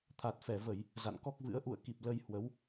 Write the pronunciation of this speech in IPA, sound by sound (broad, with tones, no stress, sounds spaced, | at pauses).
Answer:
t̪ʰ a˨˩ t̚ f ɛ˧˩ v ə˧˩˨ j | z a̰˧˨ n k ɔ˦˥ k̚ v ɨ̰˧˥ ə̯ ʔ ṵ˧˨ ə̯ k i˨˩ p̚ l ə˧ j h w ə˨˦ w